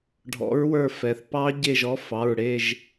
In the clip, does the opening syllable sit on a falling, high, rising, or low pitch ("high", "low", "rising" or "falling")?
rising